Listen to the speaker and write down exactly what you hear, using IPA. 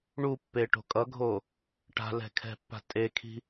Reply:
ɳ u pː e ʈ o̤ kʼ ʌ ɡʱ o | ʈ a̤ l ɛ̤ kʰ ɛ̤ pː a̤ tʼ e kʰ i̤

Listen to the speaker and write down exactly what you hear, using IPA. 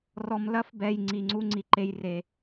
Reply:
r ɔ˨ m l ɐ˧ f b ɛ˨ j ŋ͡ǀ i˨ ŋ͡ǀ u˦ ŋ͡ǀ i˨ ǃ e˦ j r e˧

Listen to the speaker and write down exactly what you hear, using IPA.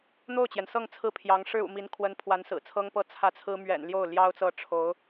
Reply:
n̪ o˥˩ ʊ̯ t͡ɕ j ɛ˩ n s ɤ˥˧ ŋ t͡sʰ ɹ̩˥˩ pʰ j ɑ˧˥ ŋ ʂ ɻ̩˥ ṵ˨˩ m i˧˥ n kʰ w ə˧˥ n pʰ w a˧˥ n s ɹ̩˨˩ t͡sʰ ɤ˥ ŋ p ɤ˥ t͡sʰ ä˥˩ t͡sʰ ɹ̩˥ m ɥ ɛ̰˨˩ n l j o˥˩ ʊ̯ l j ɑ˥ ʊ̯ t͡s ɤ˥˩ ʈ͡ʂʰ o˧˥ ʊ̯

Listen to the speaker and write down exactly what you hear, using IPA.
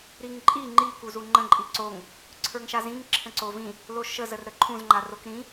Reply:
ɾ i ŋ ǃʼ i ŋ͡ǃ i k u z u ŋ͡ǃ ə̃ ǃʼ i ǀ o ŋ | ǀʰ ə˞ ŋ ʃ a z ĩ ŋ ǁʰ ə̃ ǀ o v ĩ | l o ʃ ə z ə r ɾ ə ǃʰ ũ z ŋ͡ǃ a r o k ɾ ĩ

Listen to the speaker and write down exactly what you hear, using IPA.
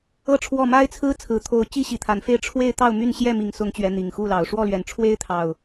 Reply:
ɤ˥˨ ʈ͡ʂʰ w ɔ˥˨ m a˦ ɪ̯ t͡sʰ ɹ̩˦ t͡sʰ ɹ̩˨˩ t̪ʰ o˨˦ ʊ̯ t͡ɕ i˦ ɕ i˨˩ t̪ʰ a˨˦ n f e˥˨ ɪ̯ ʈ͡ʂʰ w e˥˨ ɪ̯ t̪ ɑ˥˨ ʊ̯ m y˥˨ n ɕ j ɛ˥˨ m i˨˩ ŋ s ʊ˨˦ ŋ t͡ɕ ɥ ɛ˨˦ n̪ i˨˩ ŋ x u˥˨ l ɑ˨˦ ʊ̯ ʂ w ɔ˥˨ l ɥ ɛ˨˩ n ʈ͡ʂʰ w e˦ ɪ̯ t̪ʰ ɑ˨˩ ʊ̯

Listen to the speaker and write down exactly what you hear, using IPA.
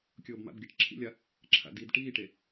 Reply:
kʲ ɤː b m a̰ b ɡʲ a ʈ ǁʰ ḭ lʲ a | ǁʰ a̰ d i d ʈ iː ʈ e

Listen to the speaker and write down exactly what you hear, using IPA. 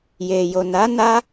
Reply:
j e˨ j o˨ n a˨˦ n a˦

